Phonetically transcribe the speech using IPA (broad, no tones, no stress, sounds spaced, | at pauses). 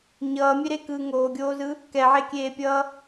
ɲ ʌː mʲ e ɾ e k ɯː ŋ oː ɡʲ oː z ɯ | k ɛ ʕ e kʲ eː pʲ ʌː